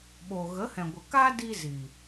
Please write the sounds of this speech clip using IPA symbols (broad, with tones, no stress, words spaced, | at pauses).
ɓoː˨ɣə˨˦hɛ̃˨ ɡʷə˨kaː˦diː˧ zi˨